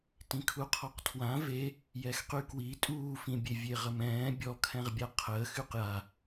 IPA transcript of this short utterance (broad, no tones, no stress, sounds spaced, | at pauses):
t ĩ kʰ u qʰ ɔ q tʰ w ã v e | j ɛ x q y k w i tʼ uː f ĩ bʲ e vʲ e ʁ ə m ɛ̃ː bʲ ɔ kʰ ɛ̃ ʁ bʲ a qʰ əː x y q j a